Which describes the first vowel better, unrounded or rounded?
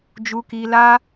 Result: rounded